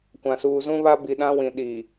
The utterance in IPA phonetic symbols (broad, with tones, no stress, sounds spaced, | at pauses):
kʷ ã˨ s uː˨ z ũ˦ β a˦ b i˨ ɗ ã˦ w ĩ˨ ɗ i˨